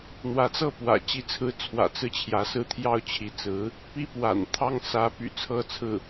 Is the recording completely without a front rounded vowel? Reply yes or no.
no